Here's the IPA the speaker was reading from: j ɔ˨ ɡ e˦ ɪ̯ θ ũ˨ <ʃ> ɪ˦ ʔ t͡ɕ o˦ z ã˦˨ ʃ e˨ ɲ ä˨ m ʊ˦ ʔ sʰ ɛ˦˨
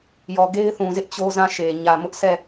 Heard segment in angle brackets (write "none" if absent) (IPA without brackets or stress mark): z